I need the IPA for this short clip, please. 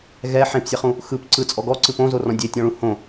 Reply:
ɣ ɛ ħ ẽ p sʲ ɛ χ ũ | x ɯ p ǀ ɯ t͡sʼ ɔ ɡ ɔ ǀ ɯ p õ z o r ɔ̃ dʲ e tʲ ɔ̃ ɭ ũ h õ

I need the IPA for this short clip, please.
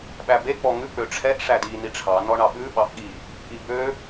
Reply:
ɓ æ b e k͡p ɔ ŋ ʉ k͡p ø ʈ͡ʂʰ ɛ ʔ ʂ æ d i n i ʈ͡ʂʰ ɑ n ɔ ɳ ɑ ɓ ʉ ɓ ɑ ʔ ɠ i | ʔ i b ø

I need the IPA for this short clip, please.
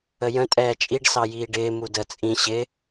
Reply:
ə j ə̃ tʼ ɛː t͡ʃʼ i ɖ s ɑ j iː ɖ ɪː m u d ə t͡sʼ ĩ ɕ ɪ

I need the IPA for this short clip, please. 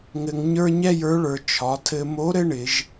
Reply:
ŋ ɘ˧ ŋ ɲ ə˞˥ ɲ ɛ˥ j ə˞˧˥ ɭ ə˞˩˧ t͡ʃʰ ɒ˩˧ tʰ ɘ˧ m o˧˥ ɾ ɘ˥ ɳ ɪ˩˧ ʒ

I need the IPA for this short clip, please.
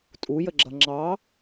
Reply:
tʼ u j ə ɡ͡ǁ ʌ ŋ͡ǁ ɑ

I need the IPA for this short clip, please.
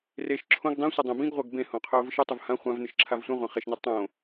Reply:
r e ʃ ǁʰ õ ɡ dˤ ĩ sʷ ɨ dˤ ẽ b ĩ ɡ ʁʷ ɐ ɡ b ẽ h õ qʰ ɵ ʊ̯ v ɨ ʃ ɨ tˤ u v h ã χʷ ã v n ɨ ʃ ǁʰ a v sʷ ĩ ʁʷ ã χ e ʃ n i tˤ õ

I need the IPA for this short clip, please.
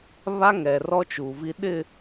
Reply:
β a˦ ŋ ɛ˨ r ɔ˦ t͡ʃ u˨ v i˦ ɗ ɪ˦˨

